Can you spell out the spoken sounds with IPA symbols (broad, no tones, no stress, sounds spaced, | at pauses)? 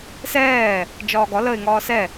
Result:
s ɛː | d͡ʒ ɒː ɡ ɒ l ə ɪ̯ ŋ ɒː s ɛ